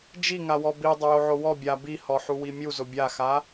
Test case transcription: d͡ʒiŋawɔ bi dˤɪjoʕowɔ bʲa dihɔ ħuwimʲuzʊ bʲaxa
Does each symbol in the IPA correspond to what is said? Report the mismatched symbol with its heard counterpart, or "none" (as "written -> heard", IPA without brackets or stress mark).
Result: d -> b